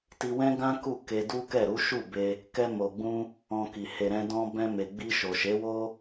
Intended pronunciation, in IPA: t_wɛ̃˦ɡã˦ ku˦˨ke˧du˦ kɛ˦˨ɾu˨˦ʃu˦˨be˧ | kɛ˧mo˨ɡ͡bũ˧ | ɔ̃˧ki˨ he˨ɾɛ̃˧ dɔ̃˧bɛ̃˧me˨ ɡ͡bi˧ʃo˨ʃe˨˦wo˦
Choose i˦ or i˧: i˧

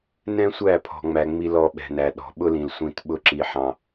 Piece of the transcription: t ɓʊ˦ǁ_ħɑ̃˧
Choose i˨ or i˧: i˧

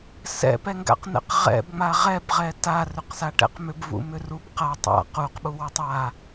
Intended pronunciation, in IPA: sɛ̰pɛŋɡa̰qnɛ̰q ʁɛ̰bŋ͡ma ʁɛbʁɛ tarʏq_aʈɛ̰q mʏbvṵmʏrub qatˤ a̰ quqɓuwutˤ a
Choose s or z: s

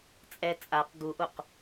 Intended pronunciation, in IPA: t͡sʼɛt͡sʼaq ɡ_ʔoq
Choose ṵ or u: u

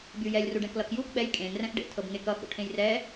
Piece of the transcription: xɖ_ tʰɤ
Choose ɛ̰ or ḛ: ḛ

